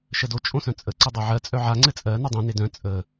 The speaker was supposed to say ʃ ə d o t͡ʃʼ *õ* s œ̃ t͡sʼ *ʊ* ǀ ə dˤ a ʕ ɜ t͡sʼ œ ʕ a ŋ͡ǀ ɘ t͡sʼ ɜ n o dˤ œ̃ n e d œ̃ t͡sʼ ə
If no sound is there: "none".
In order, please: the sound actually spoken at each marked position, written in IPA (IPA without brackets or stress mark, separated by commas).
õ, ə